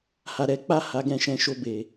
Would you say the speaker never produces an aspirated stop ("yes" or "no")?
yes